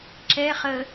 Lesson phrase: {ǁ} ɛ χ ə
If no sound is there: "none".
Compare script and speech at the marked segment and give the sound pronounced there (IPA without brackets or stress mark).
ǁ